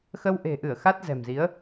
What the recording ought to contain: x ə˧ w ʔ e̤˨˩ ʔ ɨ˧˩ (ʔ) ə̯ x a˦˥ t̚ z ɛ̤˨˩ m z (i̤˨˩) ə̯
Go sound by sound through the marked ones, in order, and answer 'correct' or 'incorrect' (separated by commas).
incorrect, incorrect